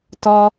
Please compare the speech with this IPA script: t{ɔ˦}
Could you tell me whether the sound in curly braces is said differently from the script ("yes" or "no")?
no